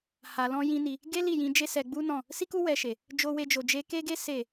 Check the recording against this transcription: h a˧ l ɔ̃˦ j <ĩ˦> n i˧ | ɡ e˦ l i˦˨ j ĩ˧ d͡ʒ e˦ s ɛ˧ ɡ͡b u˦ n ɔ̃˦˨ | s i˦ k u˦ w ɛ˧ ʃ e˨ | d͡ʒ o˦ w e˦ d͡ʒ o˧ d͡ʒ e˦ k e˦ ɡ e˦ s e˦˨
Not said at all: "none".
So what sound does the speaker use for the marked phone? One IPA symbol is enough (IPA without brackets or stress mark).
ĩ˦